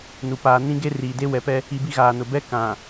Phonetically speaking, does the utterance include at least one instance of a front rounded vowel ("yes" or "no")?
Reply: no